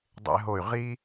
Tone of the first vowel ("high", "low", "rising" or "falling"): high